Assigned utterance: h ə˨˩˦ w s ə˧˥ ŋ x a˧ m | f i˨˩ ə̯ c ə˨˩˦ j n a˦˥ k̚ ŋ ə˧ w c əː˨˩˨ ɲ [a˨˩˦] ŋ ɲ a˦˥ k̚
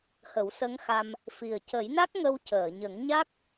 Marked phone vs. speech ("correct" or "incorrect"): incorrect